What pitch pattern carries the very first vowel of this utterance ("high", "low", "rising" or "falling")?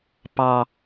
low